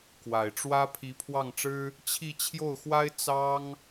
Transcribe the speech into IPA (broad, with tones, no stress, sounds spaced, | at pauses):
k w a˨˩ ɪ̯ ʈ͡ʂ w ä˥ pʰ i˧˥ pʰ w ɑ˥˩ ŋ ʈ͡ʂ ɻ̩˥ | t͡ɕʰ i˥˧ t͡ɕʰ j o˥˩ ʊ̯ x w a˥ ɪ̯ t͡s ɑ˥ ŋ